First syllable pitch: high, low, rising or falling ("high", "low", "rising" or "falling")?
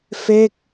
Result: falling